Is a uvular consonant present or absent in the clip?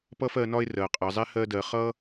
present